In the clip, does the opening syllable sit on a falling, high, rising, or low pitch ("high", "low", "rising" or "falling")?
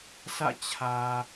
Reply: falling